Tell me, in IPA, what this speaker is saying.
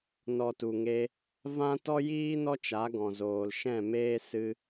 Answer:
nɔ˨tu˨ŋe˧ | vã˦ tɔ˦jiː˦ nɔ˦t͡ʃa˨˦ɡɔ̃˨ zoː˨lʃɛ̃˦˨meː˦ sɨ˧

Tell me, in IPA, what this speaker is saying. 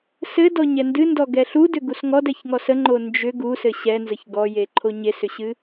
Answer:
sɘdɔɲɛ ndɨndɔɡɛ ɬudʏɡus ŋɔdɛçŋɔs əŋ͡ǃo nd͡ʒʏ ɡusɘ ɕɛnzəç ɡɔjeǃʰo ɲesʏɕɨ

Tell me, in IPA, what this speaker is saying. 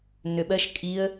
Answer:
nøɓɜʃ kʼiə̯

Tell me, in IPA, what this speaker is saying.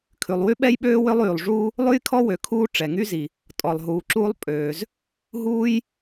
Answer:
kʰʉ˩lˠwy˥ɓɛ˥jɓøː˥ wø˥lˠyː˩lˠʐuː˥ | lˠʉ˥jkʰɔ˥wø˩ kʰuː˥ ʈ͡ʂɛ˩ŋy˥zi˩ | tʼɔ˩lˠɦuː˩ǁuː˥lˠ pʼøː˩z | ɦuː˥j

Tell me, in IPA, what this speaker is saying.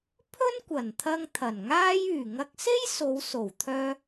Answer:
pʰɵ˥nkʷɐ˨˩nt̪ʰɐ˧ŋ t̪ʰɐ˨˩nŋaː˥j yː˨˩ŋɐ˧k̚se˥j so˨˧wso˨˩wt̪ʰœː˧

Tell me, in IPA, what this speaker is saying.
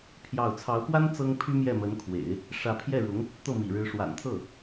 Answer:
pʰjɑ˥˩ʊ̯ t͡sʰɑ˧˥ʊ̯pwa˥n t͡sɤ˥ŋpʰy˥ mjɛ˥˩mə˧˥nkʰwḛ˨˩˦ɪ̯ | ʂä˧˥pʰjɛ˥˩ɻʊ˧˥ŋ | t̪ɤ˥˩mḭ˨˩ɻɻ̩˧˥ ʂwa̰˨˩nt̪ʰɤ˥˩

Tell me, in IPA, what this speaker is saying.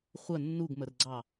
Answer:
χʷə nːuɡmərɡ͡ǀɑ

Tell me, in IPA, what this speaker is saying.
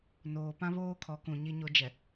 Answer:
noː˨pã˦ βoː˦kʰɔ˨˦kũ˨ ɲi˦ɲo˦ d͡ʒɛ˨

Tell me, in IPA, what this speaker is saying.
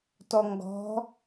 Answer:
tɔŋɡɔ̤

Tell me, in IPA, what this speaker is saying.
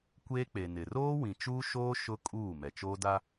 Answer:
kʷeː˦k͡pe˨nɪ˨ roː˦wĩ˨t͡ʃuː˦ʃoː˦ ʃʊ˦kʼuː˦˨ mɛ˨t͡ʃoː˦da˦

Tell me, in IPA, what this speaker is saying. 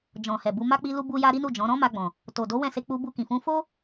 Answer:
d͡ʒɔ̃˨hɛ˨bu˨˦ma˦ k͡pi˦lu˦bu˦ja˦ ɾi˦nu˦˨d͡ʒɔ̃˨˦ ɾɔ̃˦ma˧ɡ͡bɔ̃˨ | to˨do˨˦ wɛ̃˦˨se˧k͡pu˧ bu˧kĩ˨fũ˧ fo˦

